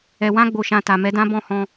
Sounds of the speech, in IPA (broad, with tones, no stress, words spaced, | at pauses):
ɛ˨wã˧ɡ͡bo˨ʃã˨ ta˨mɛ˨˦dã˦ bɔ̃˦˨hɔ̃˧